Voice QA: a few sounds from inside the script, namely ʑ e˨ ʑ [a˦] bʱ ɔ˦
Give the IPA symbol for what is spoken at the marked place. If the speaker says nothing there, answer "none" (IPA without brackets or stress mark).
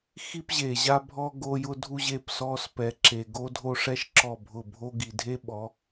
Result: a˦